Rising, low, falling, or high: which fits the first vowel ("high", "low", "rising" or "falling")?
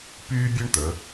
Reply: high